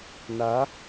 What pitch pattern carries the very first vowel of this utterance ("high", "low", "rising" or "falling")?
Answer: rising